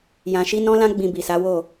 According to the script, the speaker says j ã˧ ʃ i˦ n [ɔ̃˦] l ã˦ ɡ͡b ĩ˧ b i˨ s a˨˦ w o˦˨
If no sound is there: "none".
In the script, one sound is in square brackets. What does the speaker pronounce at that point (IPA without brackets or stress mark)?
ɔ̃˦